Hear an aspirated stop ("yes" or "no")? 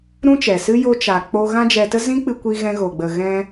no